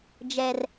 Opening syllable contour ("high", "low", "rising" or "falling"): low